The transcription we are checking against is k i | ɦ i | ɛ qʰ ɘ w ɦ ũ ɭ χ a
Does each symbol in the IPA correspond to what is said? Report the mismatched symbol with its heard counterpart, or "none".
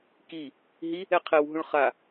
none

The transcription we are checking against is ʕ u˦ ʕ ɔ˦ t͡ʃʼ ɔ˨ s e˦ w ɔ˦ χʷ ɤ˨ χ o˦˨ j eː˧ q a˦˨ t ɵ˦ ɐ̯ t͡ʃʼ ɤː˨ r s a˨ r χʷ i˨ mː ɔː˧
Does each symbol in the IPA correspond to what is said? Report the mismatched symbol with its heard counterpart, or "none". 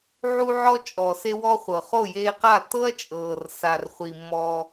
ɵ˦ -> ɤ˦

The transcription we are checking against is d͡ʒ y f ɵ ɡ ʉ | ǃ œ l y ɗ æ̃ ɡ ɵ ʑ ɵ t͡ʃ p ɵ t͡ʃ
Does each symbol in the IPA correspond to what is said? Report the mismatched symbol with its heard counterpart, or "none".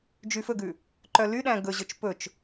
none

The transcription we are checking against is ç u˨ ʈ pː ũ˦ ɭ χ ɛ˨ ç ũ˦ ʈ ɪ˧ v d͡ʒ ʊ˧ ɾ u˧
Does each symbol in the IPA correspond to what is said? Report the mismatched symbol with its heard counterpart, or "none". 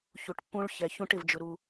χ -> ç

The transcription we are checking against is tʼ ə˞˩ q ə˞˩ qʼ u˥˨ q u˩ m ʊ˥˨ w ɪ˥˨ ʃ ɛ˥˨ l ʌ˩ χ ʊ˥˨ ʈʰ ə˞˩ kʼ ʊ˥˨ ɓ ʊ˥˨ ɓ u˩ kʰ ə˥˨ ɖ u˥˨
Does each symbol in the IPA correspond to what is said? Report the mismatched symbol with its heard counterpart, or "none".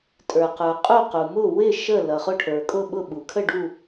ɛ˥˨ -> ə˥˨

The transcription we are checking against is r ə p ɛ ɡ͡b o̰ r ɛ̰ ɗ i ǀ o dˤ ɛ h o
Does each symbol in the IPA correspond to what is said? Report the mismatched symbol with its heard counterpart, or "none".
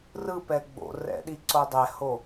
ə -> ɯ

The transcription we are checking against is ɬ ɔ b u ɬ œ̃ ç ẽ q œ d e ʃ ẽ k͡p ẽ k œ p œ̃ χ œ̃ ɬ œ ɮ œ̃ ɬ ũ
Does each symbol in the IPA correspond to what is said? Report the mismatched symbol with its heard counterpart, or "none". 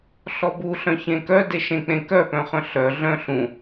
q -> k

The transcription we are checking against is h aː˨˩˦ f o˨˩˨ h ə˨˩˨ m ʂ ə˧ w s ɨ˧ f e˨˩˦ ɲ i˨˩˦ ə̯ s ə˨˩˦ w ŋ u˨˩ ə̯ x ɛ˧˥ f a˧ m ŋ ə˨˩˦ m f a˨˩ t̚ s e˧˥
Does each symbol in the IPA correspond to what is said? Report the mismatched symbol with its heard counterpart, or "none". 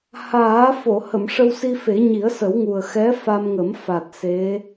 ɨ˧ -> i˧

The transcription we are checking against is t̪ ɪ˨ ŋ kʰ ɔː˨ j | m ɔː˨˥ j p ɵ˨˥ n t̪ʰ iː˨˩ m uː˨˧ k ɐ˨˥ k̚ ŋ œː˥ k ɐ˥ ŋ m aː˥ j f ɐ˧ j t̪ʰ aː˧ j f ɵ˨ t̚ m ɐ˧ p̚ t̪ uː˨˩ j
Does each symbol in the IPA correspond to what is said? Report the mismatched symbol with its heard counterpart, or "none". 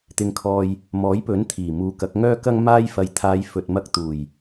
p̚ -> k̚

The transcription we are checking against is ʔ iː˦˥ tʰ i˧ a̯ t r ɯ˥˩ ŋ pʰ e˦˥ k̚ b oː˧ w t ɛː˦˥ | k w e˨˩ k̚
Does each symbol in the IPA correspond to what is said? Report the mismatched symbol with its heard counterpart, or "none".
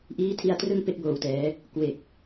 pʰ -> p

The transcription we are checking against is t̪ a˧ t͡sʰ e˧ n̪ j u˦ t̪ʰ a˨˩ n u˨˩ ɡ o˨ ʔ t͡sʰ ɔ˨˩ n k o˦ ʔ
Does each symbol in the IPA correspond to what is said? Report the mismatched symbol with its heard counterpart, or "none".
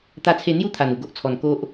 none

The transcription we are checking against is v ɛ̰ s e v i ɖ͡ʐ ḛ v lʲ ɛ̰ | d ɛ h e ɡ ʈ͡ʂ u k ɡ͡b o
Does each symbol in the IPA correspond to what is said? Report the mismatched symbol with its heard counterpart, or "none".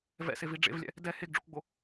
ʈ͡ʂ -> ɖ͡ʐ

